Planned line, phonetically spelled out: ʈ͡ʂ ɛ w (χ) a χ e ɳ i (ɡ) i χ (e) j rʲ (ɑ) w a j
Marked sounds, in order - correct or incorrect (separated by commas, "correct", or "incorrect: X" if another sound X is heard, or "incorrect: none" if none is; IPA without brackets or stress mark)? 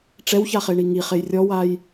incorrect: ç, incorrect: ŋ, correct, incorrect: ɔ